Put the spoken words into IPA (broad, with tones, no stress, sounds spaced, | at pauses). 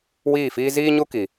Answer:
w iː˦˨ f iː˦ z iː˦ ɲ u˦ k i˨